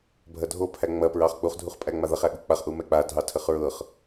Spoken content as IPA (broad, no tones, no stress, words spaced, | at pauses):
bʱɐdʱopʰæ ŋ͡mɐ pɹɑχk͡puχ dʱuχpʼæŋ͡maðɐχ æɠuk͡paχ ʔumɛk͡pa dʱɑtʰəχɹɤχ